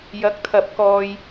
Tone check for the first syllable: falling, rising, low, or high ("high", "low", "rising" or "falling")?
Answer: rising